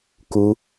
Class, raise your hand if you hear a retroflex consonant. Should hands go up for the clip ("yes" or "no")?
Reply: no